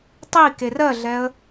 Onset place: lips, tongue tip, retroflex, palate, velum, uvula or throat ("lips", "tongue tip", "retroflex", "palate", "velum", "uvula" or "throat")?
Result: tongue tip